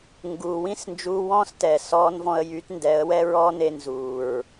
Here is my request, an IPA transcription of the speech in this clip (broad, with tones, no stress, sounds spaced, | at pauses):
ŋ ɡ uː˨ w ĩ˦ s n d͡ʒ uː˧ w ɔ̃ː˦ s t ɛ˨ s ɔː˦ n v ɔ̃˧ ə̯ j y˨˦ t n d ɛ˨˦ ə̯ w ɛ˦ ɹ ɔː˦ n e˧ n z uː˨ ɹ